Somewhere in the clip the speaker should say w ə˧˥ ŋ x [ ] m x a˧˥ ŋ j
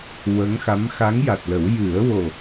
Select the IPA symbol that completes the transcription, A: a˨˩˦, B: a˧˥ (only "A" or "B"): B